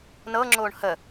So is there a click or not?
yes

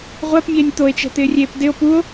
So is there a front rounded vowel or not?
no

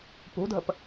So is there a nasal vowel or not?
no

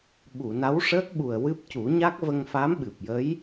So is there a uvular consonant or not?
no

